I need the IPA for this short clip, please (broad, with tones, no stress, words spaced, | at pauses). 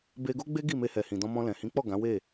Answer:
be˧ɡo˦ɡ͡be˦ ɡi˦˨me˧hɛ˨ hĩ˨dɔ̃˧mɔ̃˧lɛ̃˨ hĩ˨˦k͡pɔ˦˨ ɡã˨˦we˦˨